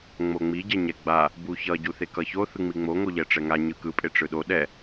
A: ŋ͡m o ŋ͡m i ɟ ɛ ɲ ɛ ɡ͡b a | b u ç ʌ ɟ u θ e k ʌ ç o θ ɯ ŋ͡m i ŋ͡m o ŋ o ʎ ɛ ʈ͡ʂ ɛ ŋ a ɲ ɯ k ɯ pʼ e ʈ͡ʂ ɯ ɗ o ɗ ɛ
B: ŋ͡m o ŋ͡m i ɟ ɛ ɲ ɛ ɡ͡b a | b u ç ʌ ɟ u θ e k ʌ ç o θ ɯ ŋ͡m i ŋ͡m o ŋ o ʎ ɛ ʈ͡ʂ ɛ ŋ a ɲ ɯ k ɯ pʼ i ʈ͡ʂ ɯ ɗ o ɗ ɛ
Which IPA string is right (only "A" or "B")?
A